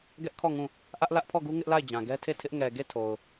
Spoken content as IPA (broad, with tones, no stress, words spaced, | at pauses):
ɡɛ˦ʔkʰɔ˦˨ŋũ˦˨ | ʔä˦ʔlä˦ʔpʰɔ˦˨ɡu˦ ŋɪ˦ʔla˦˨ɪ̯d͡ʑã˨ ɡɛ˦tʰe˦˨tʰɪ˦ʔ ŋɛ˨ɡe˦˨tʰo˨ʊ̯